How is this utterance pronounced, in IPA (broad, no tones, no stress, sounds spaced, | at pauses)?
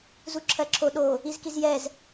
z u ǁʰ ɜ ǁʰ o ɗ o | i z k i z j ɛ z